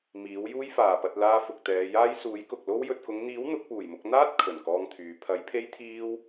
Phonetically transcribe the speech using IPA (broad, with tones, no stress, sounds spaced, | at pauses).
m iː˨˥ w j uː˥ j f aː˨ p ɐ˧ t̚ l aː˧ f ʊ˨ k̚ t̪ ɛː˨˧ j aː˥ j s uː˨˥ j k ʊ˨ k̚ l o˧ w j ɵ˨ t̚ k ʊ˨˧ ŋ n̪ iː˨˥ w n̪ ʊ˨˥ k̚ p uː˨˩ j m ʊ˧ k̚ n̪ aː˥ t̚ kʰ ɵ˨˩ n k ɔː˧ ŋ t̪ʰ yː˨˧ pʰ ɐ˨˥ j pʰ e˥ j t̪ʰ iː˥ w